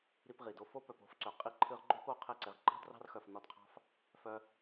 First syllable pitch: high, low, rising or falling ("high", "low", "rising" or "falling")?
high